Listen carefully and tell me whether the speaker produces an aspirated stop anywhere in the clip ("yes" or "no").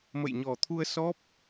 yes